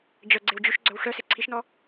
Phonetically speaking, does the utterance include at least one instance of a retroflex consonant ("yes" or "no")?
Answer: yes